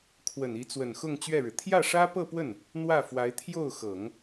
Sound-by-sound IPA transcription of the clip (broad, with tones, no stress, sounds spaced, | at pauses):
kʰ w ə˨˩ n i˧˥ t͡s w ə˨˩ n x ʊ˥˧ ŋ t͡ɕ ɥ ɛ˥˩ ɻ ɻ̩˩ t̪ʰ j ä˥˩ ʂ ä˥ p ɤ˥˧ p w ə˥˩ n | n̪ w ä˥˩ f w a˧˥ ɪ̯ t̪ʰ j o˥˩ ʊ̯ x ɤ˨˩˦ ŋ